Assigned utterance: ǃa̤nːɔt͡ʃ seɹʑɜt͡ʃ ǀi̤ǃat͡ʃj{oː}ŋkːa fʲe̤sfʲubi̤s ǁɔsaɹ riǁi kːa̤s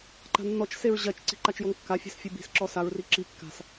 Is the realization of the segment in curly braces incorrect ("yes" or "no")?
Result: yes